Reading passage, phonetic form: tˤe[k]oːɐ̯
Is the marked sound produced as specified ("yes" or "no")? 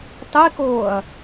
yes